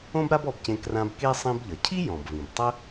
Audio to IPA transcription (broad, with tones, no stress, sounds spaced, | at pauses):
õ˥ b ɾ a˥ b ɔ˧ b c ẽ˧ k r ã˧ b k e˥ sˤ ĩ˧ b ʎ ʌ˩ cʰ i˥ j ɔ̃˩ b v ĩ˩ b tˤ ə˥